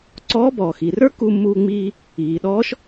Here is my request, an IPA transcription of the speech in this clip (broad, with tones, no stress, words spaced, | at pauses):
ǀɔː˧˥bɔː˩xi˩rə˞˥ ku˧mːuː˧ŋ͡miː˧ | iː˩ɗɔː˧˥ʃ